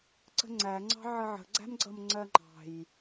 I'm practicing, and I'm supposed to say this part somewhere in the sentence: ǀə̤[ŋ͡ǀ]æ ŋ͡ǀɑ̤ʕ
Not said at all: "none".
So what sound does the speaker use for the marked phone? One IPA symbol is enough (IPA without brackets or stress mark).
ŋ͡ǀ